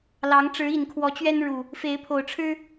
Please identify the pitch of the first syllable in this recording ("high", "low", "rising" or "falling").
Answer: rising